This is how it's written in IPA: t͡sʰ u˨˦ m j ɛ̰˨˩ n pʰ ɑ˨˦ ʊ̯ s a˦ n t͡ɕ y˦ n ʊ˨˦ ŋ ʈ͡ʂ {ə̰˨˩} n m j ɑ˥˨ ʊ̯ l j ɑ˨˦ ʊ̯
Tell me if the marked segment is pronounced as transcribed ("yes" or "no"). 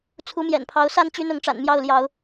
no